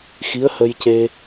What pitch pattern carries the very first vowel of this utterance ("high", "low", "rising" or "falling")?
rising